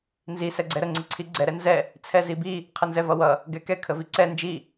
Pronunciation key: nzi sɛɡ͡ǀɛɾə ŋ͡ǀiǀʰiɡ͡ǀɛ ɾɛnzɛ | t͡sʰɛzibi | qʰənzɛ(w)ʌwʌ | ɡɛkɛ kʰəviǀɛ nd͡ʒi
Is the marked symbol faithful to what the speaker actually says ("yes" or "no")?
no